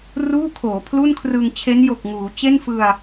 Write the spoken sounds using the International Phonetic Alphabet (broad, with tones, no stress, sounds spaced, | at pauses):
r uː˥˩ kʰ oː˩˦ pʰ l u˥˩ n kʰ r ɯ˧ ŋ t͡ɕʰ e˦˥ n j o˨˩ k̚ ŋ uː˩˦ t͡ɕ e˥˩ n f ɯ˧ a̯